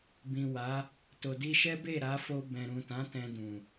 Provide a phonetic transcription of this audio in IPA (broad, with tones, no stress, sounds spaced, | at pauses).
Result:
b ĩ˨ w a˨˦ | t o˨ d i˧ ʃ ɛ˦ b e˦˨ ɾ a˨˦ f o˧ b ɛ̃˨ ɾ ũ˨ t ã˨˦ t ɛ̃˧ d ũ˨